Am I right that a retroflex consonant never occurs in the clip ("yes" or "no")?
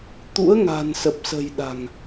yes